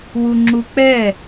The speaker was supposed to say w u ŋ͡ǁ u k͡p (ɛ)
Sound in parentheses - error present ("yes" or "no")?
no